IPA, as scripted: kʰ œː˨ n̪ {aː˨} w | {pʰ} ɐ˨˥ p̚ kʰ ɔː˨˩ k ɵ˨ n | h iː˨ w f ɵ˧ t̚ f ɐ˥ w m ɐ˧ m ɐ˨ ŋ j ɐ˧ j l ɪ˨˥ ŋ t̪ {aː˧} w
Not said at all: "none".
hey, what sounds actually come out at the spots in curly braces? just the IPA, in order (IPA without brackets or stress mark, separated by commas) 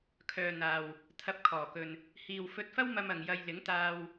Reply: aː˨, t̪ʰ, aː˧